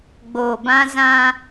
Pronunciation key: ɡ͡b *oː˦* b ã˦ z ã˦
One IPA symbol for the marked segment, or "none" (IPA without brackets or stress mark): oː˨